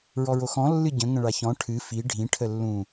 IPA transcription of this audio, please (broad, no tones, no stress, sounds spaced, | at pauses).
ɹ ɔ ɹ o x ɔ̃ lː ɨ ɟ ə̃ ŋ ə̃ ɭ a ç ɔ̃ ʈʰ ɨ f i ɖʱ ĩ ʈʰ ə lː ũ